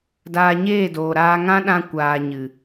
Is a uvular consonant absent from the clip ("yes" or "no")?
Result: yes